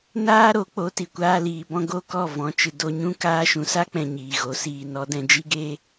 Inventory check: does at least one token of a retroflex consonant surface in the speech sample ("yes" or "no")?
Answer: no